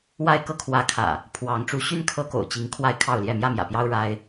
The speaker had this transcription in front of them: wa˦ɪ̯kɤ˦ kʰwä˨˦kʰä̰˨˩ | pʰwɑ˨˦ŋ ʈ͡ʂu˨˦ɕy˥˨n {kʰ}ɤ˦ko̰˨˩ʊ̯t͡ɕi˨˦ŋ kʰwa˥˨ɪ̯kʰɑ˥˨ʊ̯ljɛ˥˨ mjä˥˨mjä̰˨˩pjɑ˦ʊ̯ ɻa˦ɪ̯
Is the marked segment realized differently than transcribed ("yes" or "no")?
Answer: no